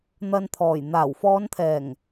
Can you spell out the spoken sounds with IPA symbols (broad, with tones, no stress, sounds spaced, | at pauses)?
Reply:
n̪ ɐ˨ n t̪ʰ ɔː˨˩ j n̪ aː˨˩ w f ɔː˨˧ n t̪ʰ ɛː˨˩ ŋ